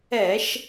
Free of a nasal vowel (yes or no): yes